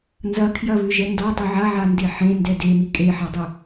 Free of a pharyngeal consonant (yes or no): no